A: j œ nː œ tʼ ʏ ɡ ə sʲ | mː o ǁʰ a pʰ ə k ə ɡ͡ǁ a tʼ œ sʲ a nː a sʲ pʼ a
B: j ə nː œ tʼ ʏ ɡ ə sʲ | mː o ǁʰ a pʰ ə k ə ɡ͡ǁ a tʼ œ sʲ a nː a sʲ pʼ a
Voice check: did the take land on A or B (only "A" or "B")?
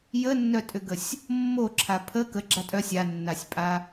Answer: B